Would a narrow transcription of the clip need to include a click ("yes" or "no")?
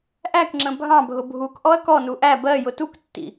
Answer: yes